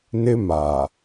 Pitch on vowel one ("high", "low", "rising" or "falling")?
high